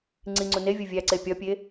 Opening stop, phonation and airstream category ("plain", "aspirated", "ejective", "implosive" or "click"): click